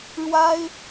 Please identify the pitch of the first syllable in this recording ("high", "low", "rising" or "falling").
high